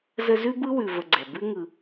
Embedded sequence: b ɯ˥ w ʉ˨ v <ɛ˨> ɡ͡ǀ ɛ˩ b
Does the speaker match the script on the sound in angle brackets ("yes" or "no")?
no